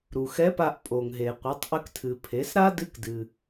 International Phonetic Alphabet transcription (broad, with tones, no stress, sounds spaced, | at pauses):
ɾ u˩ x ɛ˧˥ p a˧ ʔ pʼ o˩ ŋ ɦ e˩ qʷ ɘ˩˧ tˤ ʔ ɘ˧ k tʰ ɨ˩ pʰ e˩˧ s ɾ a˥ d ɨ˧˥ k d ɨ˩